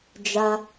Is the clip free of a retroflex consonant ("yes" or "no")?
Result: yes